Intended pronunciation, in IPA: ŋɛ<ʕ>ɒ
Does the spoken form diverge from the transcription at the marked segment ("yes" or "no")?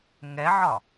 no